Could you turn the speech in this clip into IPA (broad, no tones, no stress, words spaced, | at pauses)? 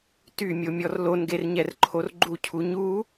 tymʲomʲɔr lonɡerɲɛrǃʰor ɡ͡ǃucʰu ɲu